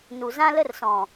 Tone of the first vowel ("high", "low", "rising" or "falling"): low